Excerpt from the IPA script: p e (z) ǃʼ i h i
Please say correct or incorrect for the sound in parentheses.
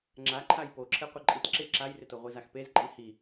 correct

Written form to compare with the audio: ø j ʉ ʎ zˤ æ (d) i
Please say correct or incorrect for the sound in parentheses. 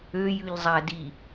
correct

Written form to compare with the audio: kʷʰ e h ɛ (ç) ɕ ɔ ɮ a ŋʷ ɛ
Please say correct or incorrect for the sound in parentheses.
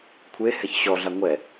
correct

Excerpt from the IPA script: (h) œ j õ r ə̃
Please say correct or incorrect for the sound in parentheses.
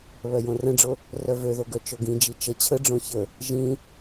incorrect: β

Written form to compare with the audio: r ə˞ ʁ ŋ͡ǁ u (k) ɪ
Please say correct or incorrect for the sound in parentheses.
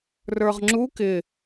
correct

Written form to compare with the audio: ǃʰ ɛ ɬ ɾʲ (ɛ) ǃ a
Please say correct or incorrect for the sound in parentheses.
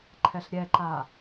correct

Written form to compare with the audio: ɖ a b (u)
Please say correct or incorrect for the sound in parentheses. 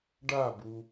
correct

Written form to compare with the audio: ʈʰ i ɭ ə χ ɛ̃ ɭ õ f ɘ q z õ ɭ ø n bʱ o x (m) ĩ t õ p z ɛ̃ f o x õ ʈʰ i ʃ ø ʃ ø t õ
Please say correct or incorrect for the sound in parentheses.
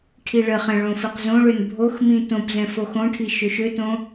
correct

